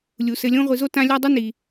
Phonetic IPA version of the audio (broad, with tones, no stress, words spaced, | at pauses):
lʲu˩sɘ˨lʲõ˦ ʁʷi˨zo˥tã˦ lʲa˦dˤɘ˥ ni˩